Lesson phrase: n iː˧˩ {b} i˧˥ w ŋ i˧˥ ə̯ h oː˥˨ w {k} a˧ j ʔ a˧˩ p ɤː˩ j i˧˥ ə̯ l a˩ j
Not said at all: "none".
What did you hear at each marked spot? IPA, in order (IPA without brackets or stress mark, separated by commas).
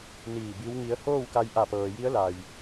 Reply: b, k